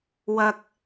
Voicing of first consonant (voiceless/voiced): voiced